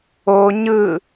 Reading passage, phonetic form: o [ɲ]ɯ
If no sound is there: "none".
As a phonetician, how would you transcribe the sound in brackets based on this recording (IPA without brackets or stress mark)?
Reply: ɲ